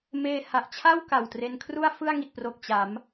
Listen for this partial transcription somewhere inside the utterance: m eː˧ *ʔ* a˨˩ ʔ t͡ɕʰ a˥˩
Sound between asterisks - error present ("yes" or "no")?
yes